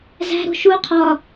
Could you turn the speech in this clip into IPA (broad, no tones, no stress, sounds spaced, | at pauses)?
z æ̤ ɾ o̤ ʃ u qʰ ɒ